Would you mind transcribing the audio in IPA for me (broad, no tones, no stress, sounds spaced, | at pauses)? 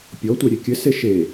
pʲ ɔ tʷ e ɾʲ e kʲ ɘ s e ʃ e